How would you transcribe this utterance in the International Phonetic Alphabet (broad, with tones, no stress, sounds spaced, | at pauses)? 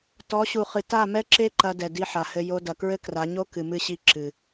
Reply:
t ɔ˨˦ ɕ u˨ χ ɨ˨ t a˦˨ m ɛ˦ ǁ e˦ ǃ ɐ˧ d ɛ˨ d i˧ ħ a˨ h ɘ˧ j o˧ d ɐ˨ k ɹ ɘ˦ k r a˨˦ ɲ o˦ k ɨ˨ m ɨ˧ ɕ i˧ ǁ ɨ˨